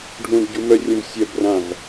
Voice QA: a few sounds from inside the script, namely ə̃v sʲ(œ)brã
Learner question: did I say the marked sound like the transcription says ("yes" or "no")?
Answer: yes